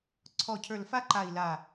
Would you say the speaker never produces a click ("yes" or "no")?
no